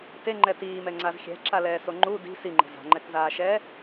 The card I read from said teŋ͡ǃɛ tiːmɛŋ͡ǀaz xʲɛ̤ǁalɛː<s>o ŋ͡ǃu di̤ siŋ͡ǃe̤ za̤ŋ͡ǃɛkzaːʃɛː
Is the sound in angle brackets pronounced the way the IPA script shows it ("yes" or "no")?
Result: yes